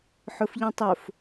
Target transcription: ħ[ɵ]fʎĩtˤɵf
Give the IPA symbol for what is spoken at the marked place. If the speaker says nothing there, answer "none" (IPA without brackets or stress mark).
ɵ